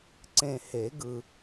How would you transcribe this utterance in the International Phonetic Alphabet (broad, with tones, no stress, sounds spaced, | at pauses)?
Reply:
ǀ ẽ˨ h e˨˩˦ ɡ ɯ˨